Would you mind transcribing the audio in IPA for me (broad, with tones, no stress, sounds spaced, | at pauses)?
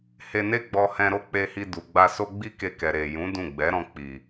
h e˧ n e˦ ɡ͡b ɔ˧ h ɛ̃˧ ɾ o˦ k͡p e˧ h i˧ d u˨ ɡ͡b a˧ s o˦ ɡ͡b i˦ k e˧ k ɛ˨ ɾ e˨ j ũ˨˦ d ũ˦˨ ɡ͡b ɛ˨˦ ɾ ɔ̃˧ k͡p i˨